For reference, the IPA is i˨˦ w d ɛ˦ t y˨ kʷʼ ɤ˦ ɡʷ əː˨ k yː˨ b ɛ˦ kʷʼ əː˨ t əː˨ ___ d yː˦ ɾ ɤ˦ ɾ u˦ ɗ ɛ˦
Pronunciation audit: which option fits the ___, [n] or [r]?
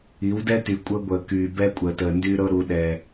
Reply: n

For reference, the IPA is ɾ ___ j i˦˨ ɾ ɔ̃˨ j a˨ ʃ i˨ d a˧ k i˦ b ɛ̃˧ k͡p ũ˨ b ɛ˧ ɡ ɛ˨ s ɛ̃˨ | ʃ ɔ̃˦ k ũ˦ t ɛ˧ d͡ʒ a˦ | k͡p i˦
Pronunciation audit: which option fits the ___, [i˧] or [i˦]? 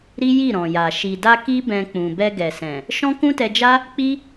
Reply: i˦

